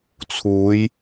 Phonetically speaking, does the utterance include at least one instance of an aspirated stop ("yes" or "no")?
yes